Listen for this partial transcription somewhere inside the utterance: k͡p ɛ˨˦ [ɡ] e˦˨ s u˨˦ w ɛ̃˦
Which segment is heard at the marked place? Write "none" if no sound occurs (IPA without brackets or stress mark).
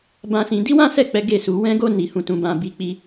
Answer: ɡ